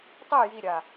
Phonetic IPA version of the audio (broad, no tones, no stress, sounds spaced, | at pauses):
tˤ e j i ɾʲ a